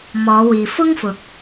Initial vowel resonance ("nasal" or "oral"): oral